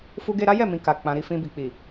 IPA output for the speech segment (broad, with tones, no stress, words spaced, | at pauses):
fu˧ɡe˧ɾa˦jɛ˦˨ mĩ˧ka˨ k͡pã˨ɾi˧ fĩ˧bi˨k͡pi˨